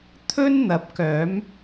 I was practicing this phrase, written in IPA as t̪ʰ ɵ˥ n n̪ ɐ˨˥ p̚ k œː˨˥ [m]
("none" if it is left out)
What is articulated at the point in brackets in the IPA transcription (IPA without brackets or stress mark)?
m